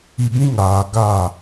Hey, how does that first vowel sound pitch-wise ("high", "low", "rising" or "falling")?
low